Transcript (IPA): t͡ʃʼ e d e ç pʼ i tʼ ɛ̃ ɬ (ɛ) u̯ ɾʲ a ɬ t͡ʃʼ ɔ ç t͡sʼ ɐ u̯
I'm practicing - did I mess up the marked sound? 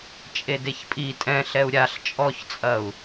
no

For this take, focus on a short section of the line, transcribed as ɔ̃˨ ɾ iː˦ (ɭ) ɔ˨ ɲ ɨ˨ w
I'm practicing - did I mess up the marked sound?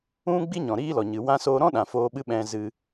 yes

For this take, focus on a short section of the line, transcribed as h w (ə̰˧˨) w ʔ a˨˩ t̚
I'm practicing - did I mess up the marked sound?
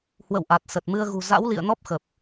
no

